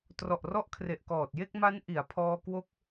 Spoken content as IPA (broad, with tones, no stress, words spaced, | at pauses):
trɔ˨˩ʔrɔ˦˥ʔkʰre˨˩ʔkɔː˨˩t̚ je˥˩k̚ma˦˥nʔi˩˦a̯ pʰɔː˧kwo˦˥k̚